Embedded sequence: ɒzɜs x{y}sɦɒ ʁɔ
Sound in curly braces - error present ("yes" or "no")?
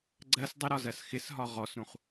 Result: yes